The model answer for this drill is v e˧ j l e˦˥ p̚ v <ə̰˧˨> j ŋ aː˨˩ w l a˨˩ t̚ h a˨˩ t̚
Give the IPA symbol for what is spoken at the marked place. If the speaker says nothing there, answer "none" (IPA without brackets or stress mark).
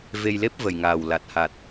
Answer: ə˨˩